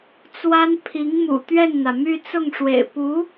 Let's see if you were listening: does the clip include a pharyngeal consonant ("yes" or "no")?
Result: no